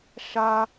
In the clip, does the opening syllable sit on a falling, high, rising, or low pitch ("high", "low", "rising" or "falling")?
high